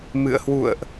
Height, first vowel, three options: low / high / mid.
high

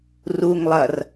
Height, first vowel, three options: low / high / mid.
high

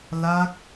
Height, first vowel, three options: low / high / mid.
low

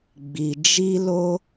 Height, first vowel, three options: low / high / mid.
high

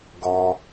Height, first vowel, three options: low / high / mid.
mid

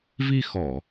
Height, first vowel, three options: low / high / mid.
high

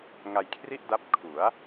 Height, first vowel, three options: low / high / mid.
low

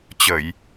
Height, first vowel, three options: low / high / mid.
mid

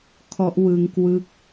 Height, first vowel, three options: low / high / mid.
mid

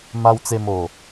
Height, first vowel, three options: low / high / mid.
low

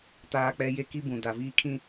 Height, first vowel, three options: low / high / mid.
low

